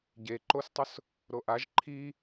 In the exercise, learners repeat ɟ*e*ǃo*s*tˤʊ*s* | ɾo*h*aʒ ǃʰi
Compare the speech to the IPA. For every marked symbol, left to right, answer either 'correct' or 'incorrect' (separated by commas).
correct, correct, correct, incorrect